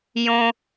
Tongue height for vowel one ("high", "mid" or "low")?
mid